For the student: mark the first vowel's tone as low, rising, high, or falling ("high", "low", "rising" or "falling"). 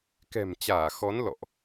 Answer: low